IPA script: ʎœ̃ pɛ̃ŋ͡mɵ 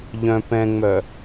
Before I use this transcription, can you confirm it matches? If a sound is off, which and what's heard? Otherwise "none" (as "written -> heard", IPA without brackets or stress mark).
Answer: ɵ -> œ